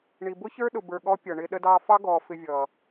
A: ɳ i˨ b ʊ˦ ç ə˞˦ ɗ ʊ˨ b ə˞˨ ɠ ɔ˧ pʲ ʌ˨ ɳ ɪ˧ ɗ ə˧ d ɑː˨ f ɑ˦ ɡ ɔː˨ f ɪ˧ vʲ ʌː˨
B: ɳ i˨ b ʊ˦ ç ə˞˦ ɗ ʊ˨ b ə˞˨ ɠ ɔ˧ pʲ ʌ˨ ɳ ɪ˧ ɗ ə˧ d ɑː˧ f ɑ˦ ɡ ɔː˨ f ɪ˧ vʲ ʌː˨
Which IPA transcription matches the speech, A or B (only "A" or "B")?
B